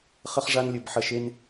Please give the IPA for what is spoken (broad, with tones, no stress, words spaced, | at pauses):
χə˦χʐa˦n lʲə˦bħɐ˦ʃe˦n